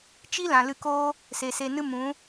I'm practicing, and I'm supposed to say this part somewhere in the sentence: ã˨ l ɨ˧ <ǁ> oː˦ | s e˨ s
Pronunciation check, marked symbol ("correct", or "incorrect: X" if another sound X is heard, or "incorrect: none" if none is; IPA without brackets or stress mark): incorrect: k